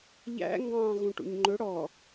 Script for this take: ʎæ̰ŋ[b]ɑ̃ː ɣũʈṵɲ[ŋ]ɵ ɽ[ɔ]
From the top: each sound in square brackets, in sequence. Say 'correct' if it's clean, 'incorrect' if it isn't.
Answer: incorrect, incorrect, correct

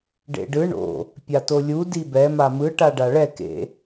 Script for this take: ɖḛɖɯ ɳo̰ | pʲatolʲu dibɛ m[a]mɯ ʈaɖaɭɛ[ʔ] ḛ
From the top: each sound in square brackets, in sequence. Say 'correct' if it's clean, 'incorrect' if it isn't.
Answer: correct, incorrect

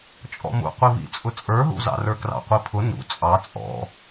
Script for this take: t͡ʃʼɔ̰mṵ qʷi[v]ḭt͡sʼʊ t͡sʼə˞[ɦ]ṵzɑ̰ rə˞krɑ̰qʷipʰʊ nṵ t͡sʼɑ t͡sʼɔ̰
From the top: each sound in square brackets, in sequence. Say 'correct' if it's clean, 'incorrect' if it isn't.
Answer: correct, correct

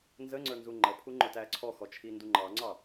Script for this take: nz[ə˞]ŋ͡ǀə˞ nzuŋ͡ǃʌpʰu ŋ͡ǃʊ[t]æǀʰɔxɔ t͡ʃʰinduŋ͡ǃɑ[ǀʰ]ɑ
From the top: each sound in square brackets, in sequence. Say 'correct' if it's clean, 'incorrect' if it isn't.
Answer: incorrect, correct, incorrect

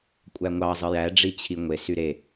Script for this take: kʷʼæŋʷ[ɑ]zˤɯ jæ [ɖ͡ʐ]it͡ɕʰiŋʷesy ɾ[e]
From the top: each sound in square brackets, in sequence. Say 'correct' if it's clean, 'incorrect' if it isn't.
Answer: correct, correct, correct

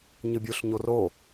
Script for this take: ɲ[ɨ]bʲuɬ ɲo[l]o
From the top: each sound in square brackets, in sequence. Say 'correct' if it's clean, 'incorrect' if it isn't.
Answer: correct, incorrect

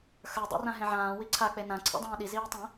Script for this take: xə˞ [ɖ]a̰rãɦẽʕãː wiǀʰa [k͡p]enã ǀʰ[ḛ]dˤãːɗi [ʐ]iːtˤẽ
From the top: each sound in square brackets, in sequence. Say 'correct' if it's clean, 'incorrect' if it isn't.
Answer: incorrect, correct, incorrect, incorrect

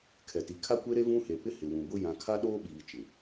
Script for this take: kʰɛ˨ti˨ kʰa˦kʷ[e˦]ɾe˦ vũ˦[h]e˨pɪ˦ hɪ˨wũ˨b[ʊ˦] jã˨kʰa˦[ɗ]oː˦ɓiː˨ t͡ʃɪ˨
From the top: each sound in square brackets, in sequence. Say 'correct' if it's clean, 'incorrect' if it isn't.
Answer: correct, correct, correct, correct

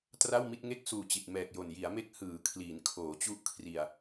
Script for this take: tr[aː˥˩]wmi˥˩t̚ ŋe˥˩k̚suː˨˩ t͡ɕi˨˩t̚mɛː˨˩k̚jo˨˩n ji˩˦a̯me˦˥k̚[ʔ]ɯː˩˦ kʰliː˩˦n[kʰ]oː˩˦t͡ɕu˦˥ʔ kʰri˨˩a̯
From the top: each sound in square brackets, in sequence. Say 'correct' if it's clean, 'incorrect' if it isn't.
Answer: incorrect, incorrect, correct

